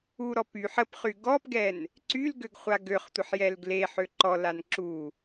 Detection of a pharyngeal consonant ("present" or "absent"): present